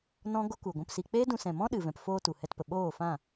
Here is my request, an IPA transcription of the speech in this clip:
nɔ̃˦ ɡo˦ku˨ ɡʷũ˧psi˧ k͡peː˦dũ˧sɛ̃˨mɔ̃˦ ɗɨ˨vɛ̃˨pfoː˧ tu˨ hɛ˧tpə˨ ɓoː˦˨fã˦˨

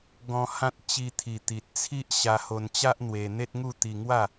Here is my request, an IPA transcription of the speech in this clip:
ɡɔ̃˧ hã˦t̚ t͡ɕi˧t̪ʰi˨˩ t̪i˨t̚ t͡sʰi˦ʔ ɕa˧ho˧nt͡ɕa˦ʔ n̪we˧ n̪e˦t̚ŋu˥˧ t̪i˧ŋwa˥˧

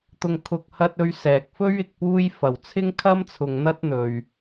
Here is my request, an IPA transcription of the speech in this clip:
t̪ʊ˨ŋkʰʊ˨k̚hɐ˧t̚ ɵ˧ɥsɛː˨k̚fɵ˥ɥ ɪ˧k̚puː˥j fɐ˨wt͡sʰɪ˥ŋkʰɐ˥m t͡sʰʊ˧ŋn̪ɐ˥t̚n̪ɵ˨ɥ

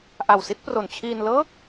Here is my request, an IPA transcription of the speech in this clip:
ʔa˨˩wsi˥˩t̚ pro˨˩nt͡ɕʰiː˧nlɤː˥˩k̚

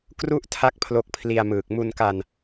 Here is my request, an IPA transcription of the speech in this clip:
kru˥˩ʔ tʰa˥˩k̚pʰlo˦˥k̚pʰli˧a̯mɯː˨˩k̚ mu˧nka˧n

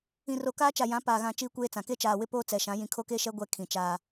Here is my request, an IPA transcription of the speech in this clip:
ĩ˨ro˨kaː˦ t͡ʃa˨jã˨˦paː˨ɣã˨ t͡ʃiː˦kʷeː˦t͡sã˨ ke˦t͡ʃaː˨wɪ˦ poː˦t͡sɛ˨ʃã˨˦ jĩ˨kʰo˦ke˦ʃɛ˦ ɡʷɛ˦kʰĩ˨t͡ʃaː˦

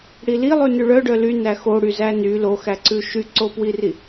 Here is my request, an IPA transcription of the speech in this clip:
ɽili lˠʉnʉɭœ ɖœly næxo ɽyzæny loxæǀʉ ʃyǀopwiri

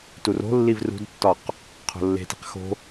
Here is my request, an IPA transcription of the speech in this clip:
turo̤lːiv rṳdtːɒq | qʰo̤lːe̤ti̤q xo̤

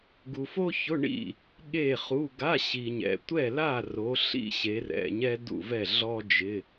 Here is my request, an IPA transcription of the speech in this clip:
ɡu˨fo˥çʊ˧˥˧ ɳḭ˥˨ | ɠe˥˨χu˧˥˧ ɡa˧˥˧ɕi˨ɲɛ̰˨ tʷɛ˥˨la˥˨ro˨˦ ɬḭ˥ɕe˨˦ rɛ̰˧˥˧ɲɛ˥ dṵ˥˨vɛ˥˨ ɮɔ˥d͡ʒɪ˧˥˧

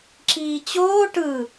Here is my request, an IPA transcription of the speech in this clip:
ǁiːt͡ɕoː ʈɯ

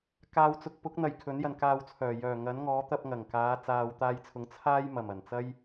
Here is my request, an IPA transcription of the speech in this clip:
kaː˨wt͡sʊ˨k̚pʊ˨˥k̚ n̪ɐ˨jkʰɵ˨˥n jɐ˨nkaː˧wt͡sʰœː˨˩ jœː˨˩ ŋɐ˨˥nŋɔː˨˥ t̪ɐ˧p̚ŋɐ˨˩ŋkaː˨˧ t͡saː˨wt̪aː˧jt͡sʰʊ˨˥ŋ t͡sʰaː˥jmɐ˨˩mɐ˨˩nt͡sɐ˥j

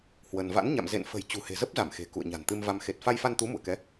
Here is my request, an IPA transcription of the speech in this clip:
hwə˧n va̰˧˥nɲa̰˧˨m zḛ˧˨nfə̤˨˩j t͡ɕṳ˨˩he̤˨˩zə˦˥p̚za˧˩m xe̤˨˩kṵ˧˨ə̯ɲa̤˨˩n t̪ɨ˧mva˧m xe˨˩t̚fa˧jfa˧nt̪u˨˦ mṵ˧˨ə̯kɛ˨˦

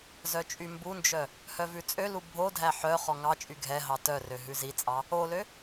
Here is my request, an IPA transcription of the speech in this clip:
zœt͡ʃʼymbund͡ʒœ | hœvʉt͡sʼølu bʱodʱæ ħœ χɔŋɑt͡ʃʼy ɡʱɛɦɑ tœrø ɦʉzit͡sʼɑ | olø

